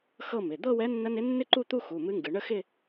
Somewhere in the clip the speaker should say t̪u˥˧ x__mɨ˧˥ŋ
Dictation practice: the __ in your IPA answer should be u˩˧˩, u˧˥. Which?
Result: u˩˧˩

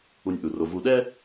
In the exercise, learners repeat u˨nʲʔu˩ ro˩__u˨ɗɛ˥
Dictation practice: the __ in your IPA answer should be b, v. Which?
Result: v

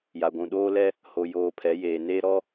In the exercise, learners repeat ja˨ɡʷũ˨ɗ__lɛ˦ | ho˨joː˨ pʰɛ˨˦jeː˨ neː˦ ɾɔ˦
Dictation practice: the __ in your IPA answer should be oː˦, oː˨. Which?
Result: oː˦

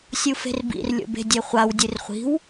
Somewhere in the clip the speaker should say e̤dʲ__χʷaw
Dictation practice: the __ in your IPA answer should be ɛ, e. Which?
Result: e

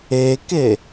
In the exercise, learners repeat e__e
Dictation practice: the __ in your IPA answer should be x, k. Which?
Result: k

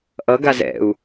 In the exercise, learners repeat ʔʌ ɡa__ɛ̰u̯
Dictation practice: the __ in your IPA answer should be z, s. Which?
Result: z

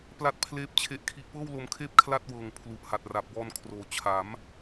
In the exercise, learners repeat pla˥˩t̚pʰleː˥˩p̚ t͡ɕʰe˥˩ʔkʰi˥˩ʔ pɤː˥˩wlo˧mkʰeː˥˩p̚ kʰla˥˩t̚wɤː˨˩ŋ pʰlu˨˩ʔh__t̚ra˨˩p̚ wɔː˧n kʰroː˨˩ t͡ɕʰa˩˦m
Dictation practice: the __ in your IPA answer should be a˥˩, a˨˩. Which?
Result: a˨˩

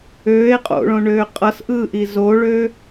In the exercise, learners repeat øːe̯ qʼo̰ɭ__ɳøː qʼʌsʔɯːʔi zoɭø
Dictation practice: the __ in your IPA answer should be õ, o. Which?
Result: õ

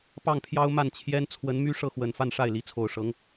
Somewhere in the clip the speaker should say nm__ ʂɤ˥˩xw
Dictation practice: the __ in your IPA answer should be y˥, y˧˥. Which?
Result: y˥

